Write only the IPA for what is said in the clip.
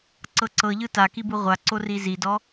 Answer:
ǀ ɤ ǀ ɤ ʎ ɯ t a k i b ɯ ʁʷ a ǀ o r i z i d ɔ

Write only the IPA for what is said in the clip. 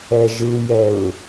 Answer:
ɛ ʒ ɯ j ɛ ɹ

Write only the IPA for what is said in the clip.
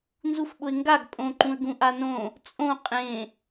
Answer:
n z u f ɓ ʊ ɪ̯ ŋ ɡ a ɡ pʼ õ ǃ ũ ə̯ ɡ ũ ʔ a n õ | t͡sʼ õ qʼ ẽ

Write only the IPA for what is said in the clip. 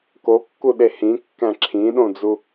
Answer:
k o kː u ɗ e h ĩ kː æ̃ ǁʰ ĩ ɗ õ d͡z u

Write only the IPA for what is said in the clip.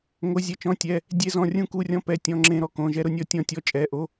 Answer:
ŋ o˧˥˧ zʲ ɛ˧˥˧ t͡ʃ ɔ̃˧˥˧ tʲ ɛ˧˥˧ | dʲ e˥ z ɔ̃˧˥˧ rʲ ũ˥ k u˧˥˧ rʲ ɔ̃˥ p ɛ˧˥˧ tʲ ɔ̃˧˥˧ ŋ͡ǁ ẽ˥ ɾ ɔ˥ k õ˧˥˧ ʒ ɛ˥ ɾ ʊ˥ nʲ ɔ˥ tʲ ɔ̃˥ tʲ ɔ˥ t͡ʃʼ ɛ˧˥˧ ʔ o˥

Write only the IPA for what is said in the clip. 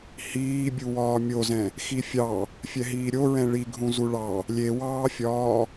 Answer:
h iː bʲ u w ɒː mʲ o z ɛ̃ | x i fʲ ɑ | fʲ ɛ ɦ iː ɾʲ o ɹ ɛ̃ ɭ i ɡʱ ũ z u ɭ ɑ | lʲ e w ɑː fʲ ɒː

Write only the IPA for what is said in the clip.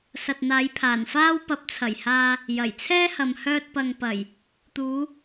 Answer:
s ɐ˨ t̚ n̪ aː˨˧ j pʰ aː˨˩ n f aː˥ w p ɐ˨˥ p̚ t͡sʰ ɐ˨˩ j h aː˧ | j ɐ˨˩ j t͡sʰ ɛː˥ h ɐ˨ m h œː˧ t̚ p ɐ˨ ŋ p ɐ˨˩ j | t̪ uː˨˧

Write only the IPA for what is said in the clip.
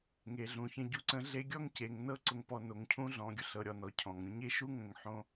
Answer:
ŋ e˩ ɮ ũ˩ ç ə̃˧ ɟ u˧˥ ǀ ə̃˧˥ ɮ e˧˥ ɡʲ ɔ˥ ŋ c e˩˧ ŋ n ɤ˥ ǀ ʊ˧ ŋ p ɔ˧ n o˩˧ ŋ cʰ ũ˥ ɮ ɔ̃˩˧ ɡʲ ʊ˩˧ ɬ ɤ˩˧ ɾʲ ɔ˩ n ɔ˩˧ cʰ ɔ̃˩ ŋ ɾʲ ũ˧ ɲ e˥ ʃ u˥ ŋ ə̃˩˧ ŋ ħ õ˧

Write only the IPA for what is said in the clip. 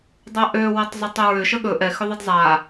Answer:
dˤ a ʔ ø w a tˤ zˤ ʏ tˤ ə ɹ ʏ ʃ ə ɠ ɵ ʔ ɛ x ʏ ðˤ ɛ d zˤ a

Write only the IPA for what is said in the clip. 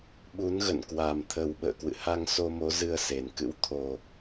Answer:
ɓ u˨˦ n ɣ ə̰˧˨ n k w a˨˩ m t̪ʰ ə˨˩ w ɓ ə̰ː˧˨ k w ɨ̰˧˨ h a˧ ŋ s o˧ m o˨˦ z ɨ˧ ə̯ s e˨˩ n k ɨ̰˧˥ w t̪ʰ o˨˩

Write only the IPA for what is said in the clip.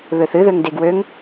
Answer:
β ø θ ɨ ð ø ŋ d e ɡ w ø ŋ

